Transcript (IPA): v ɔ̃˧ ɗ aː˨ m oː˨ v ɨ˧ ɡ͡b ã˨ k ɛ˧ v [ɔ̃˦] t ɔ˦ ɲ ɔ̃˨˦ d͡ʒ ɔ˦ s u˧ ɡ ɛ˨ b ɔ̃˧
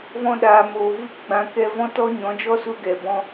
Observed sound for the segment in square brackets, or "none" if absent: ɔ̃˦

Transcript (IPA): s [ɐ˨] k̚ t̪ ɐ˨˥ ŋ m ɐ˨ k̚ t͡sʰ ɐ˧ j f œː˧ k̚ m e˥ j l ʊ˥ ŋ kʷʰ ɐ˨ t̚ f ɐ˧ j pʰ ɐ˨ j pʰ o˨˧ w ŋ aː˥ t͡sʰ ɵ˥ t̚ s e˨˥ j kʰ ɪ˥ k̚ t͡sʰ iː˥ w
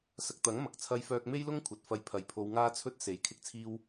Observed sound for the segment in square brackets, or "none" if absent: ɐ˧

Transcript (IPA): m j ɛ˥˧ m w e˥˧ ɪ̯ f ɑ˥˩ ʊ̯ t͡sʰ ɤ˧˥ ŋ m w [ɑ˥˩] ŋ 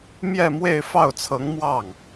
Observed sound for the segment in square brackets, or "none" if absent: ɑ˥˩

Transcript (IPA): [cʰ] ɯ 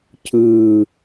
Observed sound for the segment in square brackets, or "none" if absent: cʰ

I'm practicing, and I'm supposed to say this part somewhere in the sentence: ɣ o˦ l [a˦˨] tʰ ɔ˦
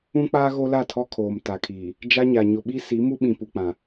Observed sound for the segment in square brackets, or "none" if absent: a˦˨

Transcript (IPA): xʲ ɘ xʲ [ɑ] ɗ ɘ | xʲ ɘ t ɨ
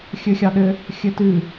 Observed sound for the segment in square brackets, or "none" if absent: ɑ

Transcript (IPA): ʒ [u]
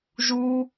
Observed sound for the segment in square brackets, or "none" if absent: u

